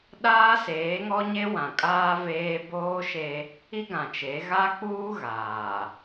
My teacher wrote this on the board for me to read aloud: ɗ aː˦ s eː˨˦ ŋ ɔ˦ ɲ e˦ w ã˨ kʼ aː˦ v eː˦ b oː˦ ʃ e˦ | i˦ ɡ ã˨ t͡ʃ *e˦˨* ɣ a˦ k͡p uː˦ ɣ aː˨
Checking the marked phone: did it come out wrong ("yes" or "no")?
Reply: yes